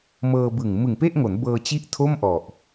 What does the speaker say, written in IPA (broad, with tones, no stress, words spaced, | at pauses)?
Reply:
mɤː˧bɯ˨˩ŋ mɯ˨˩ŋpe˥˩ʔŋo˩˦n bɤː˧t͡ɕi˦˥ʔ tʰo˥˩mʔɔ˨˩ʔ